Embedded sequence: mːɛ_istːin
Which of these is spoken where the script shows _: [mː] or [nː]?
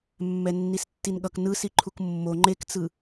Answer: nː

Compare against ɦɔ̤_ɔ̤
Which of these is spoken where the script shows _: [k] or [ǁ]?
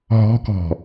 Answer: k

